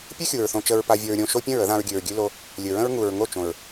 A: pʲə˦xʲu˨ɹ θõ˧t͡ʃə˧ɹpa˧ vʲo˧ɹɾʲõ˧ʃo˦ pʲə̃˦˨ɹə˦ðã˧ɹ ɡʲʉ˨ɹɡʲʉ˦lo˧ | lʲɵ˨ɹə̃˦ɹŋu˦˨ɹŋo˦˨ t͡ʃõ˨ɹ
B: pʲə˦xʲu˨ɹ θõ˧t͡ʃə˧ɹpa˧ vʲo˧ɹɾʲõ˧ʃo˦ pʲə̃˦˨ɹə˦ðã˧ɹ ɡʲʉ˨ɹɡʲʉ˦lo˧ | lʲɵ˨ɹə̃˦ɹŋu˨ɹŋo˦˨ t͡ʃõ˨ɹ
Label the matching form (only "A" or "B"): B